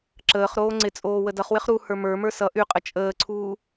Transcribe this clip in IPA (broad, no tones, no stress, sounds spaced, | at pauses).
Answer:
ǁ əː χ ɾ oː ŋ͡ǀ ɪ t͡sʼ oː w ə d ʌ χ w ɪ χ ɾ u h ə˞ m ə˞ m ə˞ s ʌ ʔ y qʼ ə t͡ʃʼ əː ǀʰ uː